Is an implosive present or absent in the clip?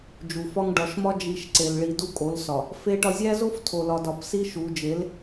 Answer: absent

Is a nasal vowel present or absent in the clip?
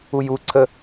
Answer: absent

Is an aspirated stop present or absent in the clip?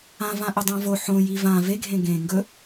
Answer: absent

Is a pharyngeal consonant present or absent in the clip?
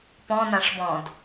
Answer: absent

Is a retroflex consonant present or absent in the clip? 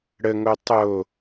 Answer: present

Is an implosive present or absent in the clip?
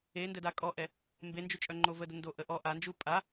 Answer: absent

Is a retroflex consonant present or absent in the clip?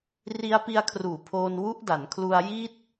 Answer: absent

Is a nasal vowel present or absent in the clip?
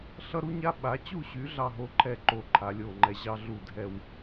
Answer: absent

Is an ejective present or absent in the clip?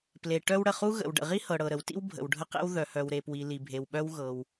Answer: absent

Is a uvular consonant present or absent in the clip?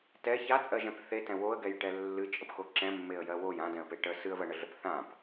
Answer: absent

